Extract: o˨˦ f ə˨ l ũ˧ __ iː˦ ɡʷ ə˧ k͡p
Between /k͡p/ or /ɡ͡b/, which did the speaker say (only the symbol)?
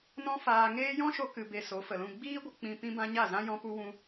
ɡ͡b